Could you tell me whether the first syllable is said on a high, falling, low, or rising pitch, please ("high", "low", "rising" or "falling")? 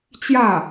falling